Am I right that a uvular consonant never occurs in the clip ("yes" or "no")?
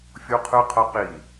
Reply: no